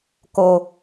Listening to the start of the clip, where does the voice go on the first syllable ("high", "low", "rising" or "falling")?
low